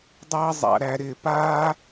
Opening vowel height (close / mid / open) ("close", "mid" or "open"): mid